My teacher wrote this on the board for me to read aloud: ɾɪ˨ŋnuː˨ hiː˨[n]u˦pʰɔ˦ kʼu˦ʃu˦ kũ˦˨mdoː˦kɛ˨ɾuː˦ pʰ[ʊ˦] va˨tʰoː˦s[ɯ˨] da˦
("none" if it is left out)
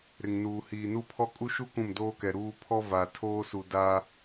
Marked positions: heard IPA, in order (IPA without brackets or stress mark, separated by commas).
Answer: n, ɔ˦, u˨